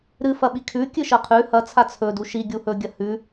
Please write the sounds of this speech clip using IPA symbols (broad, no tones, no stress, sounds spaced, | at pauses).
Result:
ɾ ɨ f ɐ ɓ i kʰ ʉ kʲ ɨ ʃ ɐ qʰ ʉ h ɐ t͡sʰ a t͡sʰ ɵ d u ʃ i ɡʲ u h ɵ ɡʲ ɐ h ʉ